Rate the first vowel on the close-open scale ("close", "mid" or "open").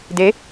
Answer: mid